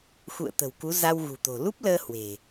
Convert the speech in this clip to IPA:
x ṵ˧˨ ə̯ t̪ ə̤˨˩ w k u˨˦ z a˧ w ɣ ṳ˨˩ t̪ o̤˨˩ l u˦˥ p̚ l əː˧ h w e̤˨˩

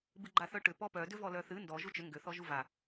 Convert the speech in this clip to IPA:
b ɨ ɡ͡ǃ a θ œ ʈ ʏ p ɔ p œ d ʏ v ɔ l œ θ ɨ n d ɔ ʒ u t͡ʃ ʏ ŋ ɡ ʏ θ ɔ ʒ u v a

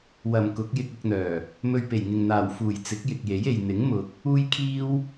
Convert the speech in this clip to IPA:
w ɐ˨˩ m k ʊ˨˥ k̚ j ɪ˧ k̚ ʊ˧ k̚ n̪ œː˨˩ | m ɵ˧ ɥ p e˨˩ j ŋ ɪ˨ ŋ n̪ aː˨˩ w f uː˨˩ j t͡s ɪ˨˥ k̚ j ɪ˨ k̚ j e˨˥ j e˨ j n̪ ɪ˨˥ ŋ m ʊ˨ k̚ | uː˥ j kʰ iː˥ w

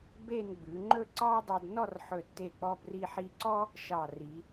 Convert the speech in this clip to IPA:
b e˥˧ n ɡ͡b ʉ˩˧ ŋ͡ǃ ɵ˥˧ ǀ ɑ˥ dˤ ɵ˧ d n ɔ˥˧ r ħ ɵ˧˩ tː e˧˩ k͡p ɔ˧ b r i˧ ħ i˧ ǀ ɔ˥ | ʃ ɑ˧˩ r i˩˧

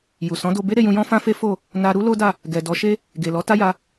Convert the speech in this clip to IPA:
j u˨ s ɔ̃˨˦ d o˧ b e˦ ɾ e˧ j ũ˧ j ɔ̃˦ f ã˦ f e˦ f o˦˨ | n a˧ ɾ u˦ l o˦ d a˦˨ | ɡ ɛ˨ d ɔ˨˦ ʃ e˦ | ɡ e˨ l ɔ˨˦ t a˦ j a˧

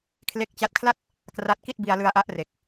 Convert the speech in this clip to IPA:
kʰ l e˦˥ k̚ t͡ɕ a˦˥ t̚ kʰ l a˥˩ t̚ | k r a˥˩ t̚ k i˥˩ t̚ b i˧ a̯ l ɯ˧ a̯ ʔ a˦˥ ʔ r e˨˩ k̚

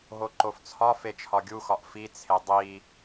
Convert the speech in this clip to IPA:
ɦ o ǃ o f t͡sʰ ɒ f e t͡ʃʰ ɒ ɡʲ u x ɒ ʔ f i t͡sʰ e dˤ i

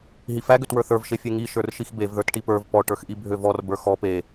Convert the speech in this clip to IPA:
ɦ i f æ ɡ ø t w ə˞ θ ə˞ v ʃ e fʲ e ŋ i ʃ ə˞ r ʃ i x b e v ð ə˞ t ʈ i p ə˞ v p ɔ ʈ ə˞ x ʔ i bʱ ø v ɔ r b ə˞ x ɔ p e

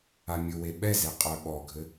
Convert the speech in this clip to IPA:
a mʲ ʊ w e ɓ ɛ z e qʼ œ ɓ ɔ ɡʱ ɘ

